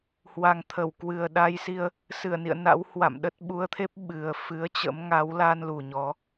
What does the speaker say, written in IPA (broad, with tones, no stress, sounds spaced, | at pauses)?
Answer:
h w a˨˩ ŋ t̪ʰ ə˧˩ w k w ɨ˨˩ ə̯ ɗ a˧ j s i˧ ə̯ | s ɨ˧˩ ə̯ n ḭ˧˨ ə̯ n a̰˧˥ w h w a̰˧˨ m ɗ ə˦˥ t̚ ɓ u˨˦ ə̯ t̪ʰ e˦˥ p̚ ɓ ɨ˨˩ ə̯ f ɨ˨˦ ə̯ t͡ɕ ə̰˧˥ m ŋ a˨˦ w l a˧ n l u˨˩ ɲ ɔ˨˦